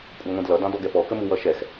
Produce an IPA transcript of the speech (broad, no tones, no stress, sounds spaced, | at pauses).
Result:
kʷʼ ɑ ŋʷ ĩ d l ʌ d ɑ̃ d ɔ ɡ ɛ p ɔ k ə m u w ʌ ʃ ɛ x